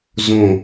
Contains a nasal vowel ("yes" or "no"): yes